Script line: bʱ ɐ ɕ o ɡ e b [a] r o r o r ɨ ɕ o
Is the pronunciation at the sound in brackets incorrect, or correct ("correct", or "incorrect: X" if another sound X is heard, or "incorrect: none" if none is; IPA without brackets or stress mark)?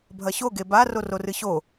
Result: correct